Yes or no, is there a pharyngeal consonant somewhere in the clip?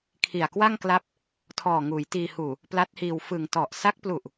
no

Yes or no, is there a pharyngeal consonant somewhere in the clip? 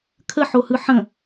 yes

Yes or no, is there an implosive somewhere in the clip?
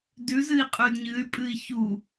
no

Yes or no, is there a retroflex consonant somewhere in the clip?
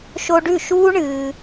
yes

